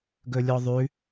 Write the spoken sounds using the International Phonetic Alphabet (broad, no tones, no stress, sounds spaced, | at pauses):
ɡ ɵ lʲ ɔ ðˤ ʉ